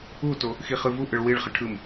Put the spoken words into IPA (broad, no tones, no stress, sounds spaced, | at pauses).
u t o | x i χ ɯ v u ʔ ɯ ɭ w i ɭ χ ə ʈʰ ɯ m